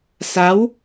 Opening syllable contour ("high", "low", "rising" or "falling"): rising